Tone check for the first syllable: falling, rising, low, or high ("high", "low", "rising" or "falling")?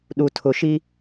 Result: low